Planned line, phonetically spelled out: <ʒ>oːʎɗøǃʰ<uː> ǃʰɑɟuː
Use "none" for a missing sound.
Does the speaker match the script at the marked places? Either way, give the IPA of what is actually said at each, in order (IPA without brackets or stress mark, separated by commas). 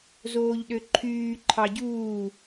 z, yː